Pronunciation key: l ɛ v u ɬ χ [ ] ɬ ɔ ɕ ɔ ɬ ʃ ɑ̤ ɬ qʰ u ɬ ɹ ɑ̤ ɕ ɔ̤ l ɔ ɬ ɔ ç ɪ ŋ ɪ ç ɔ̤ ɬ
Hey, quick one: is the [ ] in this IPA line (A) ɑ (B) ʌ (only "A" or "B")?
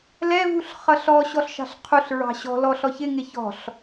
B